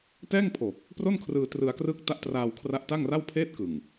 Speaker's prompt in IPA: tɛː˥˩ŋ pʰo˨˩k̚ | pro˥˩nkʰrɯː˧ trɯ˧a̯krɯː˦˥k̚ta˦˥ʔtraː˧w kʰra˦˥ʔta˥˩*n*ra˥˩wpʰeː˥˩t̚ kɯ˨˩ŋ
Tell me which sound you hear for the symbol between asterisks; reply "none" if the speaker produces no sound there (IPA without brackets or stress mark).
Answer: ŋ